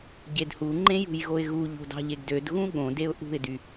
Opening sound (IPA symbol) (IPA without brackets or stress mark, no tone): ɟ